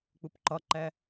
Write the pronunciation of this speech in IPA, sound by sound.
k͡pupǃɒǃæ

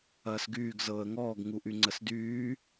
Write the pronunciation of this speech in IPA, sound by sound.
ɐːsɡyːɡ zɤːə̯ŋɔːɡ ŋuʔyŋ͡ǀəsdyː

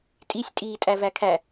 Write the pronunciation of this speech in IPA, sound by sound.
tʼisʲtʼiːtʼæ vækʰæ

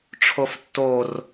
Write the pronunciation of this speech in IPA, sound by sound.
ʈ͡ʂʰoftːor

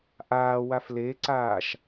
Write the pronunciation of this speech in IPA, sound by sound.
ʔaː wafleǀaːʃ

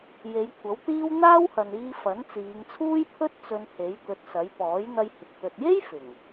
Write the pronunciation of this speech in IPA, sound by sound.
je˨˧jkʷʰɐ˨˥wt̪iː˥w n̪aː˥whɐ˨niː˧ fɐ˨˥nt͡siː˨˧ŋt͡sʰuː˥jpʰɵ˥t̚ t͡sɵ˧nhe˨˥j t̪ɵ˨˥t̚sɐ˨˥j pɔː˨˥jn̪ɐ˧jhɪ˨k̚ t̪ɵ˨t̚je˥j fɪ˨˩ŋ

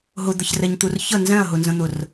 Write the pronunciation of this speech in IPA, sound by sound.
ɦʊd̪əçrɛɲt̪ur çə nzɛ̃ɐ̯ɦʊnzə̃n̪ʊr

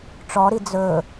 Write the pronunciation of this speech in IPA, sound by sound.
ʈ͡ʂɔɾi d͡zɵ

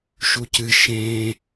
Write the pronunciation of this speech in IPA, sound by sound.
ʃucɨ ʃẽ

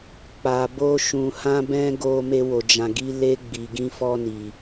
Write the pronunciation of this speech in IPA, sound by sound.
k͡pa˧bo˦ ʃũ˧ hã˦bɛ̃˦ ɡo˧ me˧wo˨d͡ʒã˨ɡi˧ le˧ ɡ͡bi˨ɡĩ˧fɔ˧ni˨

